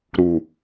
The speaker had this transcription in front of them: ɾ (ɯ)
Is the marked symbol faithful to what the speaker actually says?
no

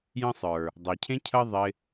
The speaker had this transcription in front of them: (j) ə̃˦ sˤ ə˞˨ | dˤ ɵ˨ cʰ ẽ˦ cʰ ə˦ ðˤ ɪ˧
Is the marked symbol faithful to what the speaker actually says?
yes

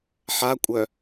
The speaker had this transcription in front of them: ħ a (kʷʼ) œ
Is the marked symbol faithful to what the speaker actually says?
yes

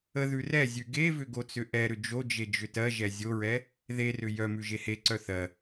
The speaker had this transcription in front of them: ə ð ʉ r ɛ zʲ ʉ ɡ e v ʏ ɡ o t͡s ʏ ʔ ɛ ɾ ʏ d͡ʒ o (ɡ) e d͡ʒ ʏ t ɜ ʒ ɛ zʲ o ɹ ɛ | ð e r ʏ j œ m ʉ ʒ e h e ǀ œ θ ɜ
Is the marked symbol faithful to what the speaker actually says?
no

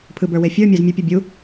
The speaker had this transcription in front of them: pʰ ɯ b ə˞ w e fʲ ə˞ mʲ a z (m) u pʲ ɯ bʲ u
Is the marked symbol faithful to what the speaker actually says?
no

